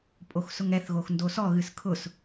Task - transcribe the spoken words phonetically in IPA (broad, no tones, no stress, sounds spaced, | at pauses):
pʼ o x s ʊ ŋ ɛ θ ɣ o x n d o s ɔ ɣ ɨ s kʰ ʊ s